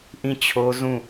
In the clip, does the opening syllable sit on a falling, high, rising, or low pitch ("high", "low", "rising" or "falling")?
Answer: falling